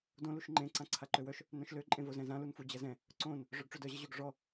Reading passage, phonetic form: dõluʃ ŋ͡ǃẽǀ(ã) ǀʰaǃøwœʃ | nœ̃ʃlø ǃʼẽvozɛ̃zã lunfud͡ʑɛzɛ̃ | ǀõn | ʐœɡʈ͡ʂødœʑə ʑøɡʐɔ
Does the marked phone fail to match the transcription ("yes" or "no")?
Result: no